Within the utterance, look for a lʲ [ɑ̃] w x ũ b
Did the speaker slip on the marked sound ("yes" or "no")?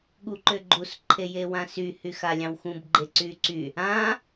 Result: no